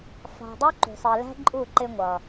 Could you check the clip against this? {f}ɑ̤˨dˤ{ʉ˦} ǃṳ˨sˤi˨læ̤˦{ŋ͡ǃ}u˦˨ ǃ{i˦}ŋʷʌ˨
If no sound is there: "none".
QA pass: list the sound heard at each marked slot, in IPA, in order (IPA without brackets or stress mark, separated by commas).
f, u˦, ǃʼ, ɪ˦